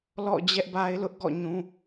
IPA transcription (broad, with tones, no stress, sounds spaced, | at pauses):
l ɔ̰˦˨ d͡ʑ ɛ˦ ʔ b a˦ ɪ̯ l ʊ˦ ʔ ɡ ɔ̰˦˨ ɲ ũ˦